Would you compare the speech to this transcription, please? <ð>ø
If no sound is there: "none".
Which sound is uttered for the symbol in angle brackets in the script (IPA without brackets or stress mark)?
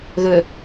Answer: ð